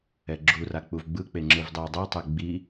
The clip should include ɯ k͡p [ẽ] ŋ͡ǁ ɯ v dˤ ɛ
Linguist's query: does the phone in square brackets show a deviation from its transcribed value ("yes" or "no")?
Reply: yes